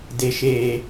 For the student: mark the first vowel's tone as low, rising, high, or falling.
low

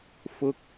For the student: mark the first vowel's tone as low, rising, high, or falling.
high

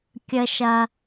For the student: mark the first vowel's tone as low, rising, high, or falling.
high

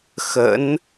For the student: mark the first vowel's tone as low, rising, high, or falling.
rising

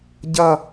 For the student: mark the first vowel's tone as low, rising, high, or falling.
falling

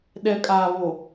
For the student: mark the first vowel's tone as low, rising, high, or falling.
low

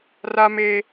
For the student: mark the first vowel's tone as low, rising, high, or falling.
high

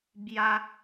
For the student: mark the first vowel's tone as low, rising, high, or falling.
high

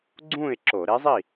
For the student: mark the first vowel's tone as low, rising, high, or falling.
falling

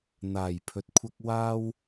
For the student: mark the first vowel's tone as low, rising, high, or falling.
low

